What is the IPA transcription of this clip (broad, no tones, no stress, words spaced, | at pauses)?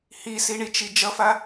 hisiɳit͡ʃi d͡ʒʌfa